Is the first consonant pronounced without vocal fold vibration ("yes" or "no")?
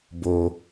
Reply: no